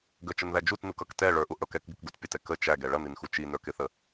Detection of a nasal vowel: absent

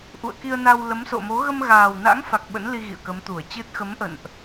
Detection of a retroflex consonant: absent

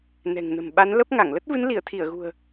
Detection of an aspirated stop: present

